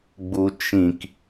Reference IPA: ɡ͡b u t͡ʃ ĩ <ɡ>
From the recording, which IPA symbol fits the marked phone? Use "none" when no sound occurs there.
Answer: k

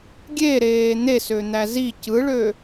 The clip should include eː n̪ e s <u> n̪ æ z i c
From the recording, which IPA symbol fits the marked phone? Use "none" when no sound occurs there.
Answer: ø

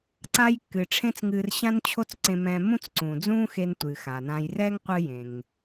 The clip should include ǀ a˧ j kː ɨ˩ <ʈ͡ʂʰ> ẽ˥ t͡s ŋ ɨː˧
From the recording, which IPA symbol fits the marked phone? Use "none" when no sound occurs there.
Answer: ʈ͡ʂʰ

